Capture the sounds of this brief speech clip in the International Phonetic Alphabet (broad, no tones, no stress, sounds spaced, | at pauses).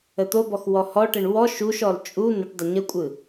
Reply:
ə t̪ o b ɔ x w ɔ h ɔ ʈ ə ɳ w ɔ ʃ u ʃ ɔ l t͡ʃʼ u n ə ʈ dˤ ə ɲ ə kʷʼ ɯ